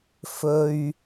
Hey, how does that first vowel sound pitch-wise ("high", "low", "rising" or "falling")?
low